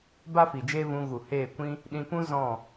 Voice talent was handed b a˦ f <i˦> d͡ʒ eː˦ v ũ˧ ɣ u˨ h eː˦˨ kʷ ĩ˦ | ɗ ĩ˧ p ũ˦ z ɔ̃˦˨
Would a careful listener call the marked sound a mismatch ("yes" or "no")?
yes